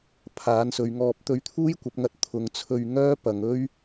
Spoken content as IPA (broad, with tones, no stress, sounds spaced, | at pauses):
pʰ aː˨˥ n s ɵ˨˧ ɥ ŋ ɔː˧ p̚ t̪ ɵ˧ ɥ t̪ʰ uː˥ j kʷ ɐ˨˥ p̚ ŋ ɐ˧ t̚ t̪ʰ ʊ˨˧ ŋ t͡sʰ ɵ˧ ɥ ŋ œː˥ p ɐ˨˧ ŋ ɵ˥ ɥ